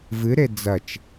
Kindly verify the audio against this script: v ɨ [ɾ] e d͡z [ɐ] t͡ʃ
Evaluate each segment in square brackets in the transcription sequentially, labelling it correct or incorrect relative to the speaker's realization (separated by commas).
correct, correct